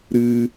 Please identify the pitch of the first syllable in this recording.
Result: high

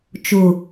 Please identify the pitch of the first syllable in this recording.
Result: low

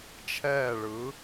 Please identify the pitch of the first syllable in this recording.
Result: falling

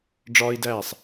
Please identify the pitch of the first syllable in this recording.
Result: high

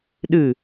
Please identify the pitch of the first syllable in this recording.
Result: falling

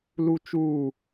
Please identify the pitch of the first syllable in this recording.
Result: high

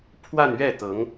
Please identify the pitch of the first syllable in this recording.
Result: falling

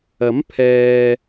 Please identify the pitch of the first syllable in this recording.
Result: rising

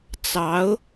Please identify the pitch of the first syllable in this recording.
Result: rising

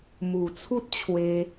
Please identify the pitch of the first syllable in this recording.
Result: low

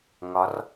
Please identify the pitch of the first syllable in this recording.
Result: rising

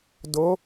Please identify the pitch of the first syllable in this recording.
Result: rising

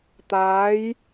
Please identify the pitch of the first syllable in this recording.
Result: rising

